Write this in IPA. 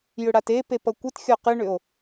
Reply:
jʏɽatepep ʌkʷɨtxʲɔ qɨɳʏo̯

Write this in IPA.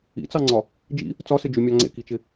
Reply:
ḭt͡sɑŋ͡ǀɒ | d͡ʒḭ | t͡sɒsɪd͡ʒymʲɑ ŋ͡ǀḛkit͡ʃɪ

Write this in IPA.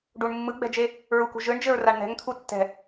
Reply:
ɖuɳ mːɯɡ͡bɛ̤d͡ʒe | ɹukṳ ʒɯɳd͡ʒɘɹ raɳn̪ɛ̤ŋt̪ʰu tːɛ̤

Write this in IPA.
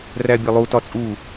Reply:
ræbʲʌlˠu tɒt͡sʼu

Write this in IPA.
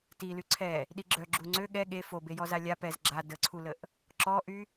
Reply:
tily ǀʰɛ | ɗiɡ͡ǁœ ɡ͡ǁuŋ͡ǀø ɠɛ ɠe fo bejɔzalʲa pɛz ɡ͡ǁa dəǀʰuləʔ | ǁɔʔy

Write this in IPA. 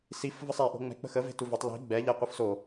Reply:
sif vəsˤe ʔo̤ŋ͡mɛ̤ k͡pə̤xə ve̤tuvotˤ li̤ ɡ͡bɛ ʎɛ qʷɯfso

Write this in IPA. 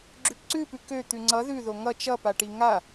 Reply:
ɡ͡ǁʉpǀʉpʉ kø t̪ʉŋ͡ǀʌ ðʉ ðoŋʌ t͡ʃʌpaʈi ŋa

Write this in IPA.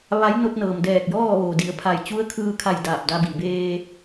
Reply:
ʋa˧˥j no˧t̚nɤː˩m dɛː˧˩k̚jɔː˥˨ ʋoː˩di˩˧ə̯pʰa˧˩j t͡ɕu˧˥ə̯kʰɯː˧kʰa˧˩j daː˧˩p̚da˧bi˩ beː˧

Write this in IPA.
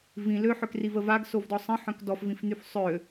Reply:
vĩ løħøkrivə vaɡsovdɔ sˤə̃ħœ̃k dɔfvĩfnyf sˤø

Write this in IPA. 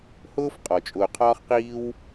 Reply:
hʊː˥f qʼɔ˩t͡ʃʼʊː˨qʰɒː˥χqiː˥w

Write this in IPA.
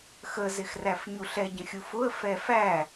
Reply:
xəzɪxræf ɲuɬɛɟə̃ xʲufʊə̯ fɛfæ

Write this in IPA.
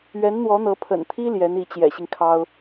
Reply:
ɥɛ˧˥nn̪wɔ˧˥n̪ɤ˧˥ pʰə̰˨˩nt̪ʰi˥ ljɛ˧˥ni˧˥ t͡ɕjɛ̰˨˩ɕi˦ŋkʰɑ˥ʊ̯

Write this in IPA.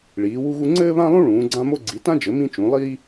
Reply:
ɭiː˨˦wu˥ɣu˥ ŋ͡ǀɘː˥βã˥lˠũ˥ ɭũː˨˦ɡ͡ǀã˥mo˥ ɡ͡ǀi˨˦tã˥d͡ʒɘ˨˦ mĩ˥t͡ʃũ˨˦ lˠiː˥

